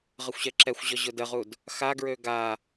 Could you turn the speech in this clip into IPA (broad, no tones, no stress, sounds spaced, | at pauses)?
ʁ ə xʷ ɕ ɛ ǁ ɛ xʷ ʑ ɔ ʑ ʊ d ə ʁ u d | x a ɡ ɹ ø ɡ a